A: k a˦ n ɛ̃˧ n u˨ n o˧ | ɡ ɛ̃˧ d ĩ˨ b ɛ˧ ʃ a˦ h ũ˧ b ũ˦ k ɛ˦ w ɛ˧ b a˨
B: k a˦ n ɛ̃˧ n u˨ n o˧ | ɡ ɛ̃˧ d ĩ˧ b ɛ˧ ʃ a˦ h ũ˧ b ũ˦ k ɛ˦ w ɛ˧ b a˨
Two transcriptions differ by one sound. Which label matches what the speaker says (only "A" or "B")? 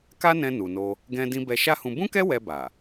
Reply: B